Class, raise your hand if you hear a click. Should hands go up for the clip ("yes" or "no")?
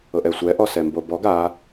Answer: no